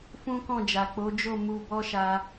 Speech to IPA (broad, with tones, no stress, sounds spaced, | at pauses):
f ũ˦ k ɔ̃˦˨ d͡ʒ a˨ k͡p o˨˦ d͡ʒ o˦˨ m u˧ b ɔ˦ ʃ a˧